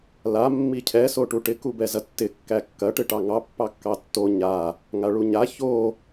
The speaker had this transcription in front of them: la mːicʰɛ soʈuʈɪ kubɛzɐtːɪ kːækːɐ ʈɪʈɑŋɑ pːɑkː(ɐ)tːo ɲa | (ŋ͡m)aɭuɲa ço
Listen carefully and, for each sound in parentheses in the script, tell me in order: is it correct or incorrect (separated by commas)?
incorrect, incorrect